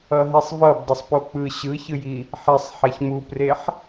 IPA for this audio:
ʌɦisˤvʌb dˤʌsˤpok͡pɯ ɕɯçɯji | ħesˤ ħɛçmupreħ

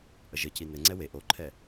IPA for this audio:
ʔəʒɘci nɘŋ͡ǀɛ we ʔoǃʰɛ

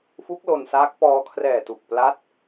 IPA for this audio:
fu˦˥k̚ lo˧nsaː˦˥k̚ pɔː˧kʰrɛː˨˩ tu˨˩k̚pla˦˥t̚

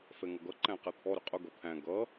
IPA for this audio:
fɛŋʌɡʌ ǃæ̃qɛt̪ʰɔ ɾʊqʼʊ ɡʌt̪ʰæ̃ ɡʌ

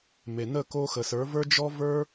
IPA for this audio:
me˩nə˥˩ ko˧ xə˩sə˞˩˥və˞˥ d͡ʒɔ˥və˞˥

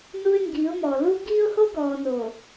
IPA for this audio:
nu˦ɪ̯ŋɡi˨˦ʊ̯mɔ˨ lu˦ ɡiː˦ʊ̯ho˦ɡɔː˨ no˨

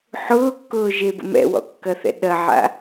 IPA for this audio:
ħʊːkːʊːʒebə̰ mɛ̰wɔ̰kːɐθɛ̰ ɗɐʕa̰

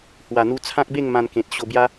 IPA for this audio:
hwa˨˩n̪u˧ t͡sʰã˦k̚be˥˧ŋ mã˧nkẽ˨t̚ɕo˧ bja˦

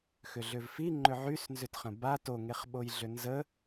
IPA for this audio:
xʏɮʏvfi ŋ͡ǃʏʕysnzʏtχə̃ ba toŋeχɓojɮʏ nzə

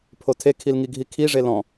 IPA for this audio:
pʰotʰekʰilŋi ɡʱikʰiʐe lɔ̃

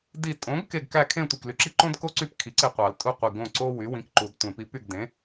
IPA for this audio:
di˧˩ tʼõ˩˥ɡke˧˩ɡ kæ˥˨ kʰẽ˥˨tʷi˧˩kly˧˩ǁi˥ ǃõ˥dko˥ǀy˥˨p kʰi˩˥ǀe˧˩qʷɑ˨˩˦l tʼu˥˨qʷi˧˩ ɡõ˥˨ ǀo˥ wy˩˥wĩ˩˥kǃu˨˩˦d tʷẽ˨˩˦pi˩˥py˥˨ɡ dẽ˩˥

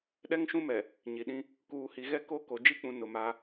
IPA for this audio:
ɗɛ˦ŋʃũ˦mɛ˨ | ɲi˨ɗĩ˦ | kuː˨hi˨ɣɛ˦ ko˦ ko˨d͡ʒi˦k͡pũ˨ nʊ˨ma˦

